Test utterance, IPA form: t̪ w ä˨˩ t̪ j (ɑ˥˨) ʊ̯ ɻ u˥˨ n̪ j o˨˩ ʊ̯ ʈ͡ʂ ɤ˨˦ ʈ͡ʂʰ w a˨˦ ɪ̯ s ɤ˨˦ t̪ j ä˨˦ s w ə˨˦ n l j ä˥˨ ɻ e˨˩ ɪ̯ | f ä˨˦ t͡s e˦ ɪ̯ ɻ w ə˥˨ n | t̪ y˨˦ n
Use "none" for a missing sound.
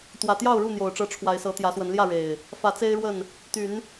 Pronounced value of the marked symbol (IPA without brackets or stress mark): ɑ˥˨